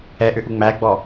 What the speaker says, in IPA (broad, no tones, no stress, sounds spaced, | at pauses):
ɛ ʔ ʏ ʔ u ŋ͡m æ ɡ͡b ɔ